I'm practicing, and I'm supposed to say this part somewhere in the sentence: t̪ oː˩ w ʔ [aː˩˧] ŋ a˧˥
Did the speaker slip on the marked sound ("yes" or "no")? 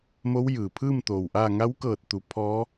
yes